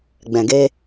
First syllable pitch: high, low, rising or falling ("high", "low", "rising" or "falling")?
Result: low